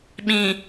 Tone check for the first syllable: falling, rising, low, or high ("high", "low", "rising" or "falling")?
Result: low